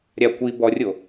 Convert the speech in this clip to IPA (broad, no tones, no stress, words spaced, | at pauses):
ɾʲa kʷi bɔrʲo